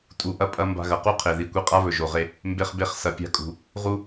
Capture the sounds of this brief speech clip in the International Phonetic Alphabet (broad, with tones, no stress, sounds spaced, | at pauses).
tʼ u˧ ʔ ɐ˦ pʼ ɐ˧ m b a̤˧ ɣ ɐ˨ q u˦ qʰ e˨ ð i˨ kʷ i˧ qʼ a˦ β ɵ˨ ʒ o˨ ʁ e˧ | m b e˧ χ b e˧ χ s ɐ˨˦ pʲ a̤˦ kʼ ṳ˧ | ʁ u˦